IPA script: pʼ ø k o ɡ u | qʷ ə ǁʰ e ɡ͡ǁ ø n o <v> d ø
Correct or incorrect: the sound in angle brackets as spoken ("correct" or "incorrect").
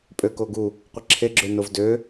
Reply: correct